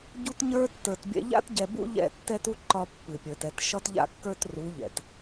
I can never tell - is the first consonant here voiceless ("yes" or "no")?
no